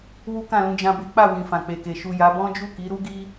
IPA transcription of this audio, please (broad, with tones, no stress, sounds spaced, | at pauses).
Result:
w u˦ k ã˦˨ l ũ˧ d͡ʒ ã˧ b e˦ k͡p a˦˨ w ĩ˨ f ã˨ k͡p e˨ k e˨ ʃ u˨ j a˨˦ b ɔ̃˦ d͡ʒ u˦˨ k i˨˦ ɾ u˦ ɡ i˦